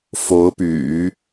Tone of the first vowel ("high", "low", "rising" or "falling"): rising